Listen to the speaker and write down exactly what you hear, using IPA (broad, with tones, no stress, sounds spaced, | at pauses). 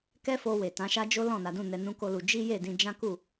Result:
k ɛ˦ f o˧ w e˨ t ã˨˦ ʃ a˦ d͡ʒ o˦ l ɔ̃˦˨ n a˨˦ d ũ˦˨ n ɛ˧ n ũ˦ k o˦ l u˧ d͡ʒ i˦ j e˦˨ d ĩ˧ d͡ʒ ã˦ k u˦˨